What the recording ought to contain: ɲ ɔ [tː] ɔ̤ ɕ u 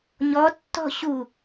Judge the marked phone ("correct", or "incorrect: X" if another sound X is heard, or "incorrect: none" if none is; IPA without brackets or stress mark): correct